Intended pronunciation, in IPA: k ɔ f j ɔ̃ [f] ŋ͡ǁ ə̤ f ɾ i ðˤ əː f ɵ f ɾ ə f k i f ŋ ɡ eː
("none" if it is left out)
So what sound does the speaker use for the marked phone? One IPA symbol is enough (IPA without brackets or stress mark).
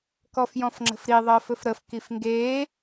f